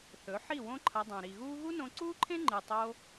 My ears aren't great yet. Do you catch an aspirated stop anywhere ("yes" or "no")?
yes